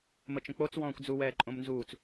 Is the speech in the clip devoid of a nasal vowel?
no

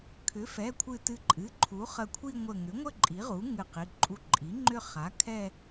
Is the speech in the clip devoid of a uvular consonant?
no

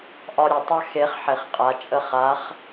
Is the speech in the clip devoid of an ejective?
no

